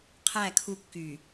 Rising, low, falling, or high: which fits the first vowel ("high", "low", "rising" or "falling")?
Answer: falling